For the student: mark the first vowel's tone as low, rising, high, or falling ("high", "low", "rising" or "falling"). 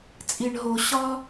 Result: low